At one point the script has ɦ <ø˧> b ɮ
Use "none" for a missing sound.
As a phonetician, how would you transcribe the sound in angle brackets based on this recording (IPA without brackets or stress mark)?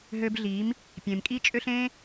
ø˧